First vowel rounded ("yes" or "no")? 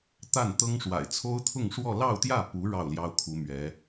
no